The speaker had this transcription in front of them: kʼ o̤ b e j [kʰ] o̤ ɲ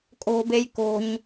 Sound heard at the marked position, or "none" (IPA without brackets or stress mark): k